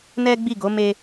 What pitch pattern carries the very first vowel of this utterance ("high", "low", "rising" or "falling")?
high